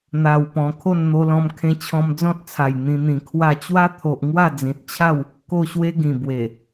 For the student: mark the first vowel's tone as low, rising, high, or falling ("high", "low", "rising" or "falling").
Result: low